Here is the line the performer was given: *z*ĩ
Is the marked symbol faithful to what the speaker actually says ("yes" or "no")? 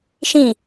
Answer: no